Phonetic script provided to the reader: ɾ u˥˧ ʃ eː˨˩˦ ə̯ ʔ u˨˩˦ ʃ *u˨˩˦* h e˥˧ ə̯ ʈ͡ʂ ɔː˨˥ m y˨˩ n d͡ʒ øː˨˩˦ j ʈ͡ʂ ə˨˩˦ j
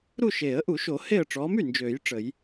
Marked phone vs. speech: incorrect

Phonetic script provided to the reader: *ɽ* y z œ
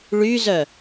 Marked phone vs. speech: incorrect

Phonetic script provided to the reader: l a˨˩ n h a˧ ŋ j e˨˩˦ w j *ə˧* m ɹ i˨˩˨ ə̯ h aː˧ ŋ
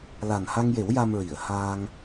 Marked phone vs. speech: incorrect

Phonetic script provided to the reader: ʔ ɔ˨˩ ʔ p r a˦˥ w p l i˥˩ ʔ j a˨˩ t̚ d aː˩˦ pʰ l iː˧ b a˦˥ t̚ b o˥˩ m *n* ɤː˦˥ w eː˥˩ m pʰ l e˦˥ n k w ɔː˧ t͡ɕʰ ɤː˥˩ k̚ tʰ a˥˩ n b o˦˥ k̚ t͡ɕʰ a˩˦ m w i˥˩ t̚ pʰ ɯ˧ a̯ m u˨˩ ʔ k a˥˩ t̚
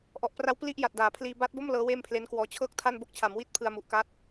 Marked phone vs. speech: incorrect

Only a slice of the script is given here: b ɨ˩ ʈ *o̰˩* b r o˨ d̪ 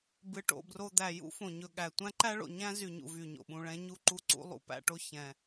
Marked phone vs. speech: correct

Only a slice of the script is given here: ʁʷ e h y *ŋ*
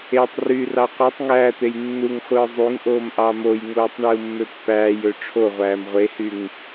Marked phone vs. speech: correct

